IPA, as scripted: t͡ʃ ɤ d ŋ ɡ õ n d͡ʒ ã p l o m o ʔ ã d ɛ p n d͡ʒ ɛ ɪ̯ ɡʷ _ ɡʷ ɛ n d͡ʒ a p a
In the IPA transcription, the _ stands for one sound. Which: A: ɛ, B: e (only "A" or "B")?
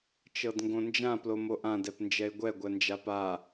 A